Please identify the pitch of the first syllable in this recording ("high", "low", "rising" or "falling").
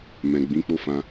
low